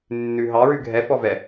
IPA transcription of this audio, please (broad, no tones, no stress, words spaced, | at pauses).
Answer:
nːʉɦɑ ɹʉɡʱɛ fɔvɛ